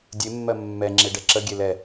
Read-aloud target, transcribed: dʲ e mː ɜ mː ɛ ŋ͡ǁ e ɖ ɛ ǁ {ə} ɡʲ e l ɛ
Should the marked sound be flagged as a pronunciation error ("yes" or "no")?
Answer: no